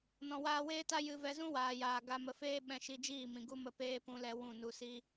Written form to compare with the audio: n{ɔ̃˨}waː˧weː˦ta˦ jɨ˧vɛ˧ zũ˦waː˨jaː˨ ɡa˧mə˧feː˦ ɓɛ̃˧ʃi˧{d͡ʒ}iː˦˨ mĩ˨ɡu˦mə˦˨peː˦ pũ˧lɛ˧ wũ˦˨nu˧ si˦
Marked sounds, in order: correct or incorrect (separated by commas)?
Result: correct, correct